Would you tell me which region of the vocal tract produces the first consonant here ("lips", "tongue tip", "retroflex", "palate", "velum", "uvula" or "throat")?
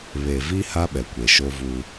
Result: lips